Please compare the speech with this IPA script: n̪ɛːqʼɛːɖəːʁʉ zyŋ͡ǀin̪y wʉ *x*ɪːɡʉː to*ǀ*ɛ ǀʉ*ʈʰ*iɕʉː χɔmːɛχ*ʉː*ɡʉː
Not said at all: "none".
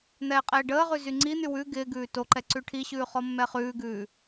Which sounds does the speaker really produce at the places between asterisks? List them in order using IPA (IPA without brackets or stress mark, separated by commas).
ɡ, ǃ, ʈʰ, ʉː